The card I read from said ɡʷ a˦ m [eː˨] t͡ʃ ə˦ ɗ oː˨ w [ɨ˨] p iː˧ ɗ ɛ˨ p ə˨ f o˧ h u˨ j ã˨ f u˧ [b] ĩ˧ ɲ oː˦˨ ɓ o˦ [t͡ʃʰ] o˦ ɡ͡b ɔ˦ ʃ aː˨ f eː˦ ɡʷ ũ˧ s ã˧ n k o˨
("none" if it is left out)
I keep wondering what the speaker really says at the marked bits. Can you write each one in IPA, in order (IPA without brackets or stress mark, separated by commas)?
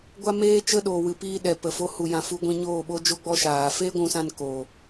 eː˦, ɨ˨, ɡʷ, d͡ʒ